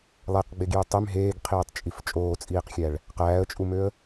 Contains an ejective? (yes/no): yes